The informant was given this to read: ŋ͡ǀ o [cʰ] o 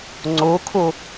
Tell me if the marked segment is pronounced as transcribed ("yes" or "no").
no